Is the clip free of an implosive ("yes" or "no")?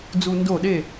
no